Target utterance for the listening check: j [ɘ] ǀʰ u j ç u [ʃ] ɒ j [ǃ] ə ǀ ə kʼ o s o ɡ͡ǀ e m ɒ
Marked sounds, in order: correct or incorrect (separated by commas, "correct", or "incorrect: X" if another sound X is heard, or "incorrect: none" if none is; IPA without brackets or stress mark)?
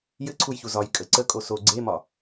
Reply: correct, incorrect: z, incorrect: kʼ